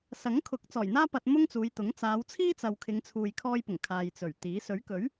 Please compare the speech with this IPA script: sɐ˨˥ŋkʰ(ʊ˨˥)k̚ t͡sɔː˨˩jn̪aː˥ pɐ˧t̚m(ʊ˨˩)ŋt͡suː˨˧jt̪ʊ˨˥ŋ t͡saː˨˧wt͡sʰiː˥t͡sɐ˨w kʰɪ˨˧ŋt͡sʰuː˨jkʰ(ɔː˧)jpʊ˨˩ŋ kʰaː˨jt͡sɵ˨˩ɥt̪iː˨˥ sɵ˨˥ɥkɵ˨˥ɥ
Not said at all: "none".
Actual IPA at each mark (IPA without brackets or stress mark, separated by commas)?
ʊ˨˥, ʊ˥, ɔː˧